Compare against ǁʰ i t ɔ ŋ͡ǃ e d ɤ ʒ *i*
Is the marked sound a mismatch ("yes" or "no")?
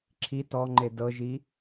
no